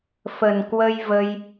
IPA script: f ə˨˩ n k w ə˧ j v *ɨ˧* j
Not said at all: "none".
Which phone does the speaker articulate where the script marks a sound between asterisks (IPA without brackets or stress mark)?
ə˧